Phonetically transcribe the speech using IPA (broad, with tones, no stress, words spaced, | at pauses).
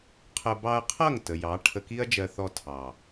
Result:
qʰə˧ bɑ˧ɐ̯qʰʌ˦˨ŋ tə˨jɑ˨˦ ʈʰə˧ki˦ɐ̯d͡ʒɜ˧ θɔ˧tʰɑ˨